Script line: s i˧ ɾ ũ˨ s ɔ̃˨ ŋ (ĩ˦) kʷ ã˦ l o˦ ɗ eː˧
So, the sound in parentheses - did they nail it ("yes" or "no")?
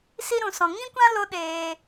yes